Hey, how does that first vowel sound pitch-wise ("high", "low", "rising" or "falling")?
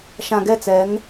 low